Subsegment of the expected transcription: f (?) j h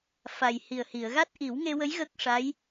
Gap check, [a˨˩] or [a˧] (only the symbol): a˨˩